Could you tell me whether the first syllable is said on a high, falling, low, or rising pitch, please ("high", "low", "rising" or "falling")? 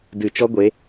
low